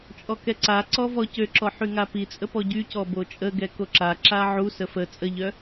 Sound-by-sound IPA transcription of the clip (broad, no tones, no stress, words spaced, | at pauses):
t͡ʃʼɔkɛǀaǀɔ vɔcøǁɔ ħyŋapit͡sʼə pɔɟycɔ bot͡ʃʼəɡɛ koǁaǁa ʕusə fə t͡sʼəʎœ